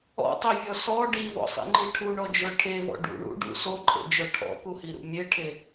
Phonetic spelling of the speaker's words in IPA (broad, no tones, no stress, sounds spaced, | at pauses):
ɔ̰ tˤ e vʲ ɔ s ɔ ɖ i v ɔ̰ sˤ ḭ ŋ͡ǃ i ʈʰ u ɳ ɔ d͡ʒ ə˞ ʈʰ e v ɔ̰ ɖ ṵ ɳ ṵ ɖ ṵ s o ǃʼ ḛ d͡ʒ œ ʈʰ ɔ̰ k u h i ɾ ṵ mʲ e ʈʰ e